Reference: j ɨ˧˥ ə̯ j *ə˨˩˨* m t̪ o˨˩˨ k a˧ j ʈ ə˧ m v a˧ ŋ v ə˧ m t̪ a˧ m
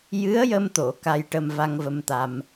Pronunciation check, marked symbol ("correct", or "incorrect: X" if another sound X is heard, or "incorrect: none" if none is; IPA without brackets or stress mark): incorrect: ə˧